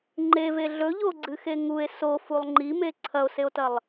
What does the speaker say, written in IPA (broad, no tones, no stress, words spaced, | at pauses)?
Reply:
ŋ͡ǃeve ɮɵʎoɡ͡ǀɨxe ŋue̯ sofulˠ ŋ͡ǃime ǀʰɐo̯seo̯tɐlˠ